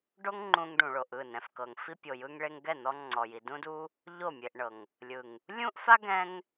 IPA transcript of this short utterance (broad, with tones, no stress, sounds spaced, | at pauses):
ɖ o˦ ŋ ŋ͡ǃ ũ˧ ŋ ɖ ũ˨ ɭ o˨ ʔ ɯ˦˨ n ɛ̃˨ f k ɤ˨ ŋ f i˧ pʲ o˨ j ɯ˧ ŋ ɭ e˧ ŋ ɡ ɛ˦˨ n̪ ɔ˧ ŋ͡ǀ ɔ˨ j i˨ d ũ˦ d u˦ | ʎ o˦˨ mʲ e˨ ʔ ɳ ɤ˨ ŋ | lʲ ɯ˨ ŋ | lʲ ũ˦ ʔ f a˦ ɡ ɛ̃˦ ŋ